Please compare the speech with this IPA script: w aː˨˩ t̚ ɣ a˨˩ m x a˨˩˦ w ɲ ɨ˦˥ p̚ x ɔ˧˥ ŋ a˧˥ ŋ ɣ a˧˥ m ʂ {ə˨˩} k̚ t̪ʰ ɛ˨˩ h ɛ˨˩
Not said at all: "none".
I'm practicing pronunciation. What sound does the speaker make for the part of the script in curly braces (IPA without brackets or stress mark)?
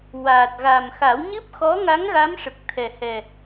ə˨˩